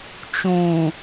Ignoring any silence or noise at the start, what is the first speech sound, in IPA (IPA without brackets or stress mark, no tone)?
t͡ʃ